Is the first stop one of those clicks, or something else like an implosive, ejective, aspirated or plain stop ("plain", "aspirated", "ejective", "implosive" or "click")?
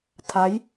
aspirated